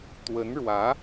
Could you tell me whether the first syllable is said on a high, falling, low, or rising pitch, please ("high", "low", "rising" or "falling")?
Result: rising